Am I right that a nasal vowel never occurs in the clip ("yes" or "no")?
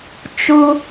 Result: yes